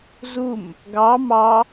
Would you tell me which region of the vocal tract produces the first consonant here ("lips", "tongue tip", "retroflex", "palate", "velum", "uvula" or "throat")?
tongue tip